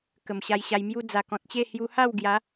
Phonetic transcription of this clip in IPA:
kə˨˩mɕa˧jɕa˧jmju˦ d͡za˨˩kɔ̃˨t̚t͡ɕe˥˧ hju˧ha˥˧wɡja˨˦

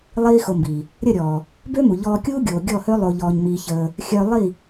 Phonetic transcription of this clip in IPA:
lˠiː˦xo˧mbiː˨ | ɾʲə˦˨ɾʲɔː˨ | bø˦mu˨ ʎɔː˧kʲuː˦ɡʲoː˨ ɡʲɔ˦˨hø˦ lˠo˧ʎɔː˧ɲmiː˧çəː˧ | xʲœ˧lˠi˦˨

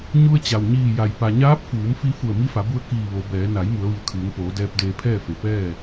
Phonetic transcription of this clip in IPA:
ɲu˧ə̯t͡ɕa˩w ɲiː˧˩ja˩j pa˩ɲaː˧˥p̚fuː˩˧m fi˧ fu˧˩ə̯mi˧˥fa˩˧bu˧ə̯ kiː˧˩ʋo˩˧bɛː˩˧ na˩˧j mu˩˧ə̯ʋi˩ə̯kʰɯː˩˧ŋpoː˩˧ dɛː˧p̚deː˧pʰɛː˥˨fe˩ pɛː˥˨

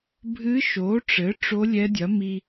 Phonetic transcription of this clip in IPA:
bʱɨ˧˥ʃo˩˥ʈ͡ʂɘ˩˥ ʈ͡ʂo˧˥lʲɛ˧˥dʲɐ˩˥mi˧

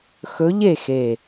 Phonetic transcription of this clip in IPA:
xɵ˧˥ʎe˥˨xe˨˩

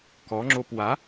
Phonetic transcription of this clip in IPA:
kɔŋ͡ǁop wa

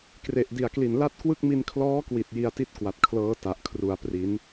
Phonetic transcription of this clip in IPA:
kre˨˩ʔdi˨˩a̯kli˨˩n la˥˩t̚kwɯ˥˩k̚mi˧n kʰlɔː˦˥kwi˨˩t̚ ji˧a̯ti˥˩t̚ kwa˨˩t̚kʰlɤː˦˥ ta˨˩ʔkʰru˩˦a̯ pri˩˦n

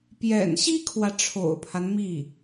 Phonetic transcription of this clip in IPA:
pjɛ̰˨˩nɕi˥kʰwä˨ ʈ͡ʂʰo̰˨˩ʊ̯pʰa˦n mi˥˩

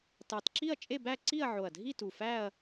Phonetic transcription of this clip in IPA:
tɑ˨˩tǁi˥˧ɐ̯ t͡ʃʼe˥˧bæ˥˧ǀi˥˧ɐ̯ʕo˨˩ɐ̯ dʱi˥˧tu˨˩fæ˥˧ɐ̯

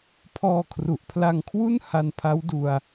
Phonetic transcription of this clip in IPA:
pʰɔː˧kʰru˨˩ʔpʰla˧ŋkʰwu˥˩n ha˧npʰa˦˥wdu˧a̯

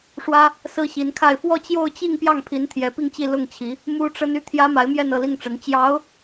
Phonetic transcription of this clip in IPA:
ʂwä˥ | sɹ̩˥ɕi˧˥nkʰa˥˧ɪ̯ fwɔ˥˧t͡ɕjo˥˧ʊ̯t͡ɕi˥˧ŋ pjɑ˥˩ŋpʰi˧˥n t̪ʰjɛ˧˥pi˥˧ŋt͡ɕi˥˧ lʊ˥˩ŋt͡ɕʰi˧˥ | mu˥ʈ͡ʂə˥n y˥t̪ʰjä˥ma˧˥ɪ̯mjɛ˥˧n ɤ˥˧li˥˩ŋʈ͡ʂə˧˥n t͡ɕjɑ˧˥ʊ̯

